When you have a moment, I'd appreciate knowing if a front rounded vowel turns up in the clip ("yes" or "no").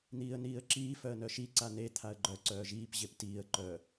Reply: yes